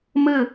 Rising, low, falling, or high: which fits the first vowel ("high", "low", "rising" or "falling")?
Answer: falling